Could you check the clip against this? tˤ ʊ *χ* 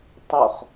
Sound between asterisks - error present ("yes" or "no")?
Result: no